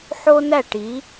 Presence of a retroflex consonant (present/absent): present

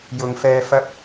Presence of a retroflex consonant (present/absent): absent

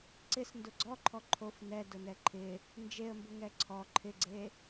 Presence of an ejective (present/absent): absent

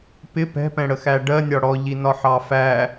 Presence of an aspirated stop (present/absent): absent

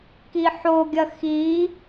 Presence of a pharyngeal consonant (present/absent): present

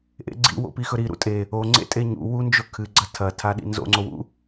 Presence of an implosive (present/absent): present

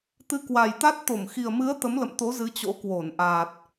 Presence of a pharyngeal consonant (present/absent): absent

